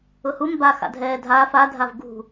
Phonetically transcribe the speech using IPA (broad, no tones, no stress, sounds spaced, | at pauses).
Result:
ʊ h u m b a x a̰ dʱ ɛː dʱ aː f a dʱ a v ɡ ṳ